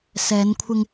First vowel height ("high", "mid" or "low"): mid